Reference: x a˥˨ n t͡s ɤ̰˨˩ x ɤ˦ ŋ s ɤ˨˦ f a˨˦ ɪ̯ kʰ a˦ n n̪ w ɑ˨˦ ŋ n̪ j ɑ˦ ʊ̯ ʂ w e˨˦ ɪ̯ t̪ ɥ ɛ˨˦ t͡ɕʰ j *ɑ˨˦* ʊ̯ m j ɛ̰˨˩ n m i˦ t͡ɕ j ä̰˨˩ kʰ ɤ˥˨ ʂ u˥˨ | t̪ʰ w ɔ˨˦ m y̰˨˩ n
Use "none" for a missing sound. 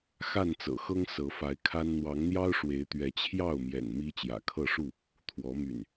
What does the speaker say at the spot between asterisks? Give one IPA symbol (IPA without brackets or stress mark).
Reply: ɑ˥˨